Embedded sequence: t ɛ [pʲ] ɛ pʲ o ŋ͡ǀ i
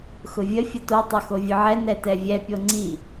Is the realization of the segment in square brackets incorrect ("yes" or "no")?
yes